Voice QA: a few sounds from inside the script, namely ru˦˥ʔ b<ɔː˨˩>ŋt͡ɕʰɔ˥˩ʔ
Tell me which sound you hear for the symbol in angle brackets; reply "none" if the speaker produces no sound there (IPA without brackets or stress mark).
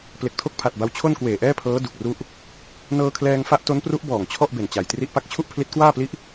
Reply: ɔː˨˩